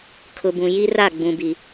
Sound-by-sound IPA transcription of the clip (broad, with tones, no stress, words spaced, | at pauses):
kʰʊ˨bũ˨ji˦ ra˦˨ ɡ͡bũ˨bi˨